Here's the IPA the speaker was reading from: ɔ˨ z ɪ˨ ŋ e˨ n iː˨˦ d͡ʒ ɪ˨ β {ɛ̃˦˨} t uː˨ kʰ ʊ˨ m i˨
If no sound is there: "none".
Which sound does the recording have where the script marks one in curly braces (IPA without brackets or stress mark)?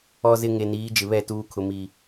ɛ˦˨